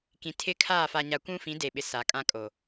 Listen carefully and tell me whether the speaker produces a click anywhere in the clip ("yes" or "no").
no